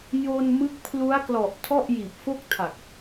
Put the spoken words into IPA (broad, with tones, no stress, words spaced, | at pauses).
jo˧n mɯ˦˥k̚pʰlu˦˥a̯klɔ˨˩ʔ tʰɔ˥˩ʔjiː˨˩p̚ fo˥˩k̚tʰa˨˩k̚